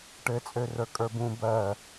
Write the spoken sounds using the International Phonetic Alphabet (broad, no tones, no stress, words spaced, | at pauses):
ʈɘt͡sʼørə˞kʼə˞ bũ bɜ